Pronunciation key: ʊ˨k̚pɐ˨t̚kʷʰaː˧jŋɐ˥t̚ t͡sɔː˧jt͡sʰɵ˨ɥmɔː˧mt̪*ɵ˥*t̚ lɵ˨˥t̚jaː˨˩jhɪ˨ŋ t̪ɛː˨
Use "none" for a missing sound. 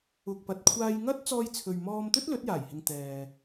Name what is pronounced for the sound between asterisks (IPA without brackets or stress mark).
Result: ɵ˥